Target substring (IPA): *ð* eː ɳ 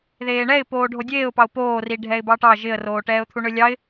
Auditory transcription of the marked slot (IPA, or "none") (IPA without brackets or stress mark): ð